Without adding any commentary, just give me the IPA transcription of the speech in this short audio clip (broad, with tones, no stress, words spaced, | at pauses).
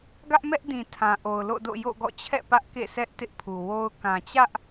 ɡä˦ʔmɛ˦ʔdĩ˨ tʰã˨ʔo˨ʊ̯lo̰˦˨do̰˦˨ jo̰˦˨ɡɔ̰˦˨t͡ɕʰɛ̰˦˨ pä˦ʔkḛ˦˨ sʰɛ˦ʔ tɪ˦ʔpʰu˨wo˦ʊ̯ kã˨t͡ɕä˦ʔ